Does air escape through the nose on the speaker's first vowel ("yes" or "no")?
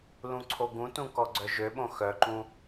yes